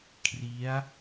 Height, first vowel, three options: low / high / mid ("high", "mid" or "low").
high